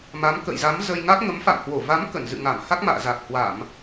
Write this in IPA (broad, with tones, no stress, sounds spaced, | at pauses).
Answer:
m a˨˦ m k ə̰˧˨ j z a˨˦ m z ə˧ j ŋ a˦˥ k̚ ŋ ə˨˦ m f a̰˧˨ m h w o˧˩ v a˨˦ m k ə˧˩ n z ɨ̰˧˨ ŋ a˧˩ m h a˦˥ k̚ m a̰ː˧˨ z a˨˩ k̚ h w a˧˩˨ m